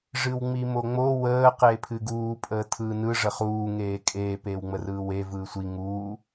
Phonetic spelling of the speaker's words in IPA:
ʐ ɨ w ŋ͡m i m o ŋ͡m o w əː q eː pʰ ɨ ɡ uː pʼ əː tʰ ɯː n ɯ ʐ ə χ uː ŋ eː kʼ eː p eː w ŋ͡m ə r ɯː w e v ɯː sʷ i ŋ uː

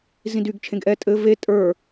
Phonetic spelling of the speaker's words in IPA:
z ĩ d y ɡ t͡ʃʰ ẽ ɡ ʔ ɛ tʼ ɘ v e tʼ ə˞

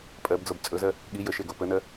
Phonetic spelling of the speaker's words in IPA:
pʼ ɜ b d͡z o b t͡sʼ ɵ z ɜ | ɠ i j ə ʃ e ɡ o p ə n ɜ

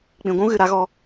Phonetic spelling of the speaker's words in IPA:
k͡p ĩ˨ ɡʷ ũ˦ ɣ ɨ˨ ɾ a˨˦ ɣ ɔ˧

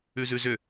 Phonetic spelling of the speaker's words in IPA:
ʉ z ʉ z ʏ

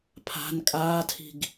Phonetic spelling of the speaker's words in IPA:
pʰ a̤ n kʼ aː tʰ i̤ ɡ

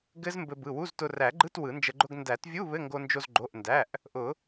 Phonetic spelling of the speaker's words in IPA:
ɡ ɘ˦˥ z m b ɘ˧ b ɯ˩˧˩ w u˧˥˧ z t ʊ˧ r æ˨˩˦ ɡ͡ǃ ɯ˧˥˧ t w ɯ˨˩˦ n d͡ʒ ə˧ ɡ͡ǃ ʊ˧˥˧ ɡ n d æ˨˩˦ t vʲ u˧˥˧ β ɘ˧˥˧ ŋ ɡ o˧ n d͡ʒ o˧ z ɡ͡ǃ o˩˧˩ ʔ n d æ˩˧˩ ʔ | ʔ ʊ˨˩˦

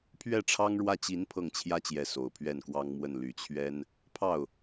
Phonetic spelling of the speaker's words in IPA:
pʰ ɥ ɛ˥˩ ʈ͡ʂʰ ɑ˥ ŋ ɻ w ä˥˩ t͡ɕ i˧˥ n pʰ ɤ˥˩ ŋ t͡ɕʰ j ä˥ t͡ɕ j ɛ˧˥ s o˨˩ ʊ̯ pʰ ɥ ɛ˥˩ n k w ɑ˥ ŋ m w ə˥˩ n l y˨˩ t͡ɕʰ ɥ ɛ˥ n | pʰ ɑ˥˩ ʊ̯

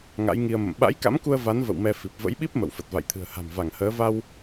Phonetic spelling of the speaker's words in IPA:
ŋ a̰˧˥ j ŋ i˧ ə̯ m ə̰˧˨ m ɓ a̰˧˥ j k a̰˧˥ m k u˧ ə̯ v a˨˦ n v ə̰˧˨ w m ɛ˧ f i˨˩ p̚ v ə̰˧˥ j ɓ i˦˥ p̚ m ə̰˧˨ w f ə˨˩ t̚ v a̰˧˨ j t̪ʰ ɨ̤˨˩ ə̯ h a̤˨˩ m v a˧˩ ŋ h əː˨˦ v a˧ w

